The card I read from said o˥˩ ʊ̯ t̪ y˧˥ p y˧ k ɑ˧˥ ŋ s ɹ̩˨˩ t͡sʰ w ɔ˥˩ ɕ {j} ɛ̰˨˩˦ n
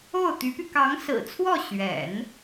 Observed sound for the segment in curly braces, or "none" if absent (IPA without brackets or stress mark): ɥ